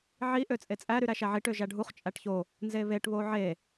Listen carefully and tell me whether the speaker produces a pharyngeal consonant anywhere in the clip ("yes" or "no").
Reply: yes